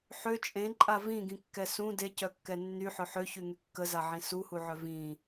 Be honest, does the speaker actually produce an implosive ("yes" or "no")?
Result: no